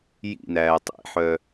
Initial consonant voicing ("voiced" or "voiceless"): voiced